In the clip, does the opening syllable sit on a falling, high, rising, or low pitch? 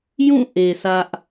falling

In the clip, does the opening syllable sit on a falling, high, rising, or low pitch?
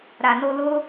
low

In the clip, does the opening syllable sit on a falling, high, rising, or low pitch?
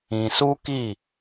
low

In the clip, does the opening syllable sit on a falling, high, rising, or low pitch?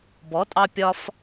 rising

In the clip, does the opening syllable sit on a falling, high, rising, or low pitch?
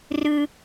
high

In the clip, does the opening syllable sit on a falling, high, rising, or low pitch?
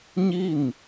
falling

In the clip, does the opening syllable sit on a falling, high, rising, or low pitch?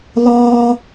high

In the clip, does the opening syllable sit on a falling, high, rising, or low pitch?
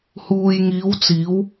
low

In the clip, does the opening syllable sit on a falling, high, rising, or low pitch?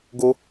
high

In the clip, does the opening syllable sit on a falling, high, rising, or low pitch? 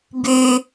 low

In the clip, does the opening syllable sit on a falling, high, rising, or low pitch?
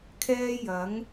high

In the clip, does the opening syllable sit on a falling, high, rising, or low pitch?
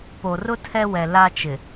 low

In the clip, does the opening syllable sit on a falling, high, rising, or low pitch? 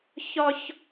high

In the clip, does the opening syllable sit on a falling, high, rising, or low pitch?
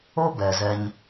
high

